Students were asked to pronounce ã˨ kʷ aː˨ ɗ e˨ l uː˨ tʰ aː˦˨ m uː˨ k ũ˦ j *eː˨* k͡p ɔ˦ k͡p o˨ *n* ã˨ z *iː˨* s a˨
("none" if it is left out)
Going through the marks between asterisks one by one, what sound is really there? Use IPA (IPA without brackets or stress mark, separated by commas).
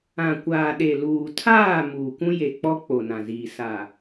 e˨, n, iː˨